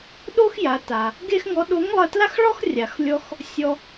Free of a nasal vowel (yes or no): yes